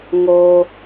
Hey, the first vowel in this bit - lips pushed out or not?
yes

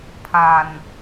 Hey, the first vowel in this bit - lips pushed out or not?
no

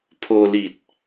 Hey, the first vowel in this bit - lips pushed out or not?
yes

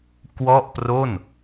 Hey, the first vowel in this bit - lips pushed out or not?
yes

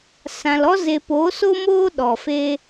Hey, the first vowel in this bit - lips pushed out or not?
no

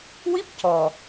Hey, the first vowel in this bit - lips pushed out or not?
no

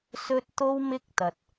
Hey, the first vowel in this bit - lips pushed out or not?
yes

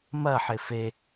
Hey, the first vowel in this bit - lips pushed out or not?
no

